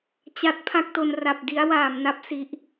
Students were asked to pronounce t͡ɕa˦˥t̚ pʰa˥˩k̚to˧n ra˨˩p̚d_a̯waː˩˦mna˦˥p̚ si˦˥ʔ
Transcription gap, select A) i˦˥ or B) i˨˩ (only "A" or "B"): A